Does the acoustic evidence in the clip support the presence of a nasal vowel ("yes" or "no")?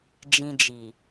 yes